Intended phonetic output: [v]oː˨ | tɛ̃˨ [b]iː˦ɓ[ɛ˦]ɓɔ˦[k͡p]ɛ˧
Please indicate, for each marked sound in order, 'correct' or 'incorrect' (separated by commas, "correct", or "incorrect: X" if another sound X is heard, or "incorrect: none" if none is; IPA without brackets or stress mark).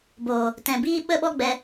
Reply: incorrect: b, correct, incorrect: ə˦, incorrect: ɡ͡b